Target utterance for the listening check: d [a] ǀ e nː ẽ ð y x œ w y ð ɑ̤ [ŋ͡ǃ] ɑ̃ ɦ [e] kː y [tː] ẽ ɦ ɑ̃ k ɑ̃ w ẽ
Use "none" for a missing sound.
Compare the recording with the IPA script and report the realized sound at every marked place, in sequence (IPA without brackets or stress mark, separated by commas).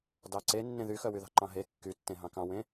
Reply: ɑ, ǃ, e, tː